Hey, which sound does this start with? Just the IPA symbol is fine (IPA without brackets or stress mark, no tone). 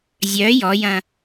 zʲ